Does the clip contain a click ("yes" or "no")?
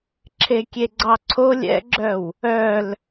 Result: yes